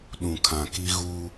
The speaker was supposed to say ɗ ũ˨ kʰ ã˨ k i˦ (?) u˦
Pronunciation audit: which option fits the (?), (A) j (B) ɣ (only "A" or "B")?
B